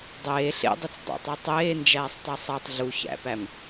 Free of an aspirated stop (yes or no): yes